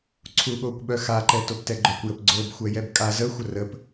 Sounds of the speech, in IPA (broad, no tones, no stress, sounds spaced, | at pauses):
ǀʰ u ɠ o kʷ ɓ œ x a ǃ ɛ t o p t ɛ ɡ͡ǃ œ kʷ j ə p ɡ͡ǀ o b xʷ ɛ j ɛ b kʼ a z ə xʷ ə r ə p